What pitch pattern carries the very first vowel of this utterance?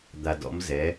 low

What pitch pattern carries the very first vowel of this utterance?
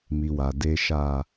low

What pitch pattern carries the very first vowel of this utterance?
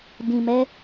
low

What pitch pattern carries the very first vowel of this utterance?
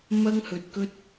high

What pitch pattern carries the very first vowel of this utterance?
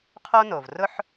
high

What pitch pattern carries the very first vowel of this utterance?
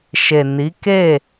low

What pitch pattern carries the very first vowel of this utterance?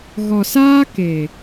low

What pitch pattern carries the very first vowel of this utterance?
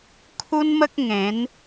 high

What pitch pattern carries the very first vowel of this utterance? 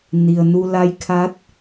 low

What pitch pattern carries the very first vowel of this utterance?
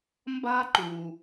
high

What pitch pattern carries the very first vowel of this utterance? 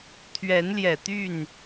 rising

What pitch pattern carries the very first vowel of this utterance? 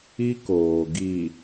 high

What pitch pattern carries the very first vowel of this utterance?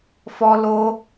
high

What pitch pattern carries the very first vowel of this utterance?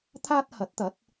high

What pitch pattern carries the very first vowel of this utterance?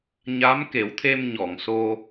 rising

